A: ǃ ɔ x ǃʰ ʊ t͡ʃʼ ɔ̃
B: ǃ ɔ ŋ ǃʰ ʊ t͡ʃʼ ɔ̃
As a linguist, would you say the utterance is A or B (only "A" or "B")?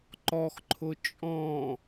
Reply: A